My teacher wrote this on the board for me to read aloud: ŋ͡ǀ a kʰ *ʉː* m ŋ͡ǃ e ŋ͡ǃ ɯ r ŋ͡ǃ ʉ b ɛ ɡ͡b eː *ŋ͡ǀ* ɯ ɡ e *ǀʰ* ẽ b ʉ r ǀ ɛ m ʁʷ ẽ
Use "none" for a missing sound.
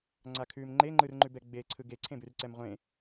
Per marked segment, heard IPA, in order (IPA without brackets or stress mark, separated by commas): ʉː, ǀʰ, ǀʰ